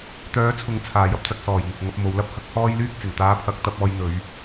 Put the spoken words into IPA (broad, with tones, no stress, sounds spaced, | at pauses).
t̪ œː˨˥ t͡sʰ ʊ˨˧ ŋ t͡sʰ aː˨˩ j ɐ˥ p̚ t͡s ɐ˨˥ k̚ s ɔː˨˩ j ŋ ɪ˨ k̚ ŋ ɐ˧ p̚ m o˨˧ w l ɐ˥ p̚ h ɐ˥ k̚ h ɔː˥ j l yː˥ k̚ t͡s ɪ˨˩ ŋ t̪ aː˧ pʰ ɐ˨˥ k̚ t̪ ɐ˧ p̚ ɔː˧ j n̪ ɵ˨˧ ɥ